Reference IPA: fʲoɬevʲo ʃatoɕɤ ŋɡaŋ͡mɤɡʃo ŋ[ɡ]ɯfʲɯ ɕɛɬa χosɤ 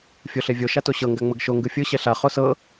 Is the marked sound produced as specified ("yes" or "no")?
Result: yes